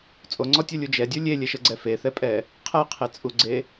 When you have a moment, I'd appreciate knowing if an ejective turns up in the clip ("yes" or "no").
yes